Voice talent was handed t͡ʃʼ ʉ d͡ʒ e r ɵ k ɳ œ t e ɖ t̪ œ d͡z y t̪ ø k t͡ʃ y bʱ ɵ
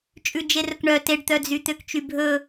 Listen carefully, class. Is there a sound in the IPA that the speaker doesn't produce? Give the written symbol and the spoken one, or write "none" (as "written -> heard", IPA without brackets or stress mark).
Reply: none